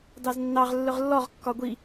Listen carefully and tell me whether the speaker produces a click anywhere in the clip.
no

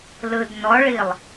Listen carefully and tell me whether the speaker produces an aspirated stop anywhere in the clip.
no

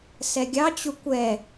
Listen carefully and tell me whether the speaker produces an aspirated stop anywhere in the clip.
no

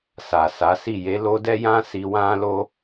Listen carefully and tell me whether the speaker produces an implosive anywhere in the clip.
no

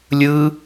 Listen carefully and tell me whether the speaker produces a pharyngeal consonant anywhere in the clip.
no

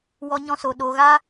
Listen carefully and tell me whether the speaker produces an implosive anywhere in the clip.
yes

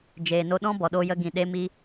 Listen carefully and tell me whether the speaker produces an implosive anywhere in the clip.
yes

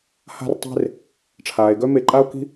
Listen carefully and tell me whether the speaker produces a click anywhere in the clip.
yes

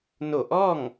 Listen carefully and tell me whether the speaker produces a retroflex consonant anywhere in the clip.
no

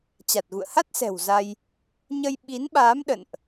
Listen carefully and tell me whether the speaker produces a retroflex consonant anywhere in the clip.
no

